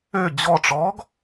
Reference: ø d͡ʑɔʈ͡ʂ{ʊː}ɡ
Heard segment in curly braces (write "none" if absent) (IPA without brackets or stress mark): ɔː